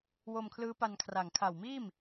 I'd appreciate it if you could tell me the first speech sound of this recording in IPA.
w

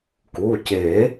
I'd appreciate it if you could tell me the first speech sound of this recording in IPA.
k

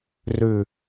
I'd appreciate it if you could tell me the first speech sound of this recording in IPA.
r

